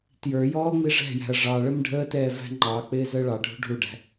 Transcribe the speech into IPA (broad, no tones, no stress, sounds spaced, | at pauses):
t j ə˞ j ɔː ŋ͡m i ʐ ɛ̤ j æ̤ ɐ̯ ʐ ɑ ɭ ə m ɖʱ əː t ɛː v æ̤ ŋ͡ǃ ɑ k͡p ɪː z əː ɭ ɑ ɖʱ ṳ ɖʱ u ɖ æ̤